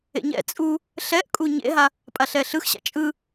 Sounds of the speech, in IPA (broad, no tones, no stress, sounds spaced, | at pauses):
ḛ ɲ ɛ̰ t͡sʼ u | ɬ ɛ ʔ kʼ u ɲ ḛ ɦ a | pʼ a ɬ ɛ ɬ ɯ x ɕ a̰ t͡ʃʼ ɯ